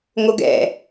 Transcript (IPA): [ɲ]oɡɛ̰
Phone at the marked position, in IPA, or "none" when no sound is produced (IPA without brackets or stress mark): ŋ